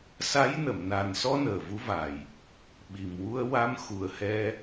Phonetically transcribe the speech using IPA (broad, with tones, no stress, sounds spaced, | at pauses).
s a˧˥ j n ə˨˩˨ m n a˨˩ n s ɔ˧ n əː˨˩ v u˧˥ v a˨˩ j | ɓ i˨˩ m w u˧ ə̯ w a˧ m x u˨˩ ə̯ h ɛ˧